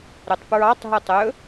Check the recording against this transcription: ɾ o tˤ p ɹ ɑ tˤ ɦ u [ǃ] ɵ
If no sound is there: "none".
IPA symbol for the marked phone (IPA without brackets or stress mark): tˤ